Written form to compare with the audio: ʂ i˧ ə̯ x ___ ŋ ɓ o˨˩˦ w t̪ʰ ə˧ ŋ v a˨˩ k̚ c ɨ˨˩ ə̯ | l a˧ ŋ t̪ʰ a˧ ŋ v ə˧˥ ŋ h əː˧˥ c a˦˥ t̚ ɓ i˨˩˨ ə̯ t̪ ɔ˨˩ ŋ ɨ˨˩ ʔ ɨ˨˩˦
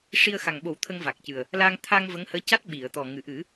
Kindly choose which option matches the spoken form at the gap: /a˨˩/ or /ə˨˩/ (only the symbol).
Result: a˨˩